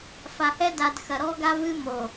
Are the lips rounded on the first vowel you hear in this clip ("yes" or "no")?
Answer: no